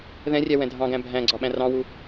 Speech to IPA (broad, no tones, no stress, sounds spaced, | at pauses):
ð ɛ̃ rʲ æ w ɛ̃ dʱ ɑ̃ ɡ æ̃ bʱ æ̃ ɡ͡ǀ ɒ ɓ æ̃ r ɑ̃ w u